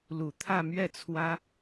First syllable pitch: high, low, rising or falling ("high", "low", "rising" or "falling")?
low